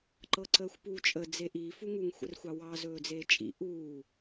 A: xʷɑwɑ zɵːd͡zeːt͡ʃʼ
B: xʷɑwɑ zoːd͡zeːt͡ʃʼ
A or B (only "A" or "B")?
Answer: A